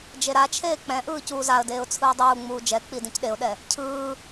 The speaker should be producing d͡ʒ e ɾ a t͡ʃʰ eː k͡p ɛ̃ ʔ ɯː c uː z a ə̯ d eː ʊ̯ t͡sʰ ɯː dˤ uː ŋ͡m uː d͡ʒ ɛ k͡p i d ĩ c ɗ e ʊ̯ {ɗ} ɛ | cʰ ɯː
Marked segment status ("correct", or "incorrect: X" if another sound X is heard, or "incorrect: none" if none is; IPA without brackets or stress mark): correct